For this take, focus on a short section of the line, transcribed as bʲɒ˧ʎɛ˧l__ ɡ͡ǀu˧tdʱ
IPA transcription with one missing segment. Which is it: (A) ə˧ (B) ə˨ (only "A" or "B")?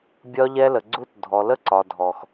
B